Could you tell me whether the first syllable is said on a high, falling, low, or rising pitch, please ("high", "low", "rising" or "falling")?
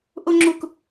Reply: high